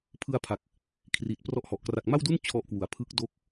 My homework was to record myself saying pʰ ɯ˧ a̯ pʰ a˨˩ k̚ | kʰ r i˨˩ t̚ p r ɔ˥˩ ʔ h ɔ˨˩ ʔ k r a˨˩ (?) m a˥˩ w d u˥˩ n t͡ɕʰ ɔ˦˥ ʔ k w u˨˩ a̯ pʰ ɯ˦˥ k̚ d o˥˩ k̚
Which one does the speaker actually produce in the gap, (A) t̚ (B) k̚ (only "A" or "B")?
B